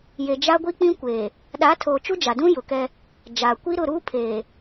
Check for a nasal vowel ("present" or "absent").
present